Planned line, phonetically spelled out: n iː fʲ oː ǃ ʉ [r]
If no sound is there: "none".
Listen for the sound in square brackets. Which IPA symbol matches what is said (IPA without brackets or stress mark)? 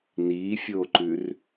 r